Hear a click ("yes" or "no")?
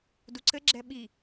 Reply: yes